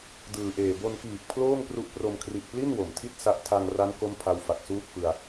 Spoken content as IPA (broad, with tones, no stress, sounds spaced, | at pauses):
d ɯː˨˩ ʔ eː˨˩ b o˧ n k iː˨˩ k̚ pʰ l oː˥˩ ŋ p r u˦˥ ʔ p r o˧ m kʰ r i˨˩ ʔ p l i˥˩ n w o˩˦ m tʰ i˥˩ t̚ s a˦˥ ʔ tʰ a˧ ŋ r a˦˥ n k o˥˩ m pʰ a˧ w f a˨˩ k̚ s uː˥˩ t̚ f ɯ˧ a̯